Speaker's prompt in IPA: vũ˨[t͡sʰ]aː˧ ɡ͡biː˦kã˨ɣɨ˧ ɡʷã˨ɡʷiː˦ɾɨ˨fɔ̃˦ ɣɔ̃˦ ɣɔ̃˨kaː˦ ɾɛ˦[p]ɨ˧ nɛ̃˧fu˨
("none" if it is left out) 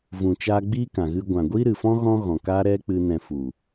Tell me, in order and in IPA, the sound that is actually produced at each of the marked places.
t͡ʃ, k͡p

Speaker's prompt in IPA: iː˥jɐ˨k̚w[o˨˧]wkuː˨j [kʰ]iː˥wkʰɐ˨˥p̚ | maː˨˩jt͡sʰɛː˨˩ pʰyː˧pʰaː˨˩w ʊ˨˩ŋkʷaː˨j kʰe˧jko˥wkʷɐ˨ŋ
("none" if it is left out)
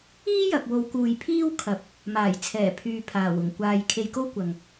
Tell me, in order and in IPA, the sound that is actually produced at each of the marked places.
o˨˧, pʰ

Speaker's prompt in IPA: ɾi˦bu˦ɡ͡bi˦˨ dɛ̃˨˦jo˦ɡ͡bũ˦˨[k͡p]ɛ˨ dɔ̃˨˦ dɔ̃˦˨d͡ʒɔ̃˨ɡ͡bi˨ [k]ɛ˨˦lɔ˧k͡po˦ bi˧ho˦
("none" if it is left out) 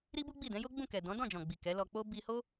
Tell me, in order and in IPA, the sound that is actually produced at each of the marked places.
k, k

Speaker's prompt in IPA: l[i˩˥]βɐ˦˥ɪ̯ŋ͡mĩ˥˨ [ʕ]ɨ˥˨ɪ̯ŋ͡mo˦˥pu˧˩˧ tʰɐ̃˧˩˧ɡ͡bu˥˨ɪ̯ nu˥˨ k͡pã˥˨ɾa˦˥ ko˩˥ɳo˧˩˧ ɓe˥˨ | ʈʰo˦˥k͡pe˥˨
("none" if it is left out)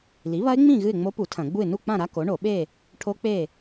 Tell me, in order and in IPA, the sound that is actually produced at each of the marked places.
i˩˥, ɣ

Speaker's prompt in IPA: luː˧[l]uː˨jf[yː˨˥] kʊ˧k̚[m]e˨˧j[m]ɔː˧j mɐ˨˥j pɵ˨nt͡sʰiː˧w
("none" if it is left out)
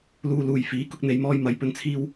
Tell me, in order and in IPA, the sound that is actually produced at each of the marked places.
l, iː˨˥, n̪, m

